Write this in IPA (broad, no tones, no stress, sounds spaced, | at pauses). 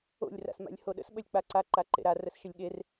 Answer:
o̰ lʲ r a̰ s m a̰ lʲ h o ɗ ə̰ s ɓ ə lʲ k͡p a ǀ a ǃ a ǃ ḛ ɾ a r ə s ʃ ə lʲ ɠ e r